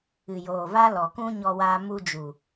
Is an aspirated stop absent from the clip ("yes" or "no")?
yes